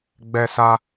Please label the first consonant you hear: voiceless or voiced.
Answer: voiced